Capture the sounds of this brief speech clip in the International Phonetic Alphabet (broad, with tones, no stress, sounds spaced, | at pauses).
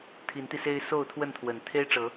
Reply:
t̪ʰ i˨˦ n t̪ i˧ s e˦ ɪ̯ s o˥˨ ʊ̯ t̪ʰ w ə˥˨ n t̪ʰ w ə˨˩ n t̪ʰ e˦ ɪ̯ ʈ͡ʂ ɤ˨˦